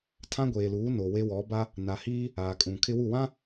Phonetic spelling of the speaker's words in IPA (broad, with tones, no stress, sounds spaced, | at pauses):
tʰ ã˦ ɡʷ eː˨ l uː˨˦ n o˨ w e˦ w ɔ˨˦ b a˦ | n a˨ h iː˦ | aː˨ kʼ ũ˨ kʰ ɪ˦ w u˦˨ w ã˦